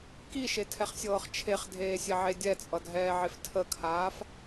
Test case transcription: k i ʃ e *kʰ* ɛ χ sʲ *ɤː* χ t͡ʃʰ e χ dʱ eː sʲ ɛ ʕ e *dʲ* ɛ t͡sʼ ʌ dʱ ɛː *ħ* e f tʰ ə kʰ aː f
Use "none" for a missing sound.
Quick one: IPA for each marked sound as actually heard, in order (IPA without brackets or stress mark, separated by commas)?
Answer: tʰ, ɤː, dʲ, ʕ